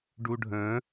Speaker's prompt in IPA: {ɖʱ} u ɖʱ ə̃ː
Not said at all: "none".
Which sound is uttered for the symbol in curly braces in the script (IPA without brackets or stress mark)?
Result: ɖ